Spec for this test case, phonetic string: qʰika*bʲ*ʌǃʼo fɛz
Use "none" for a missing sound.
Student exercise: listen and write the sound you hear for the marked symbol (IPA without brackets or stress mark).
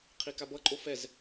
b